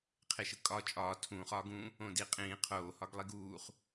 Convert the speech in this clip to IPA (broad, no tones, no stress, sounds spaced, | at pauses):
qʰ e ʃ ɯ kʼ ɒ t͡ʃʼ ɒː tʰ ũː χ ɒː ɡ ũː | õ d i qʼ ĩː qʰ oː h ɒ ɡ lˠ i ɡ uː χ